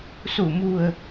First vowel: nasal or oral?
oral